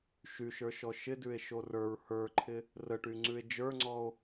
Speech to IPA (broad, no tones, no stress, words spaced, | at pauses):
ʃyʃə˞ʃɔ ʃɪdʉe̯ʃo rə˞ɹ hə˞ǃʰɪ | rəʈyŋ͡ǀʉe̯ d͡ʒə˞ŋ͡ǀɔo̯